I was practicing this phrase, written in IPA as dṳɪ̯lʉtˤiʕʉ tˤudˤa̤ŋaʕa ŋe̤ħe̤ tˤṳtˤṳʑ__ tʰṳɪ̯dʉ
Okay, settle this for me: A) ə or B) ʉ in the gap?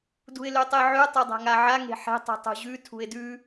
B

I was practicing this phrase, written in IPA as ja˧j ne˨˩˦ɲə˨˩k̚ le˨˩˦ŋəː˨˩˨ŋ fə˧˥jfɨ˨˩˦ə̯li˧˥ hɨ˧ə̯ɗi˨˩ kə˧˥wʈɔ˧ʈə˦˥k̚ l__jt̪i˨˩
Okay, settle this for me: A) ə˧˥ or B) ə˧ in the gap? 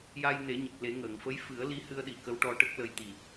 B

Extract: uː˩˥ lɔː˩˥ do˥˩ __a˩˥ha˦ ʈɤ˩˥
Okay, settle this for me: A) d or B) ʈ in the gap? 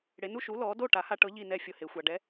B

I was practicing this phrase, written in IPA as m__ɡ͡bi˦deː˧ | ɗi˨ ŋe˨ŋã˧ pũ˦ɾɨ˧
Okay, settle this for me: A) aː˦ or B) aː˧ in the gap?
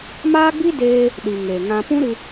A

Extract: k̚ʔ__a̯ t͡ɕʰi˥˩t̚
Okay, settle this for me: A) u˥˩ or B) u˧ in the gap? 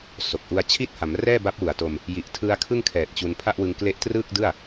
B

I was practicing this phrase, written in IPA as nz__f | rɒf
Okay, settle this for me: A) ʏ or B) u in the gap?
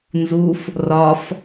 B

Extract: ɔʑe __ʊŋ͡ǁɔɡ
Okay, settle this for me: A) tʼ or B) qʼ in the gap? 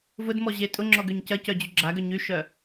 A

